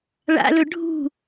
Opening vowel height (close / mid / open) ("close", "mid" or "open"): open